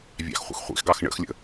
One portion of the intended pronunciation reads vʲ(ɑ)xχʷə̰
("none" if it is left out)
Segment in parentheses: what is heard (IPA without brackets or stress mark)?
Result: ɑ̰